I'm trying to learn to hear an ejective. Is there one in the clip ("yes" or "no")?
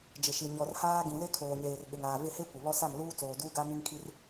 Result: no